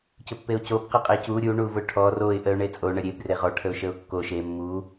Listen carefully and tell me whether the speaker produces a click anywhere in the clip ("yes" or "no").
no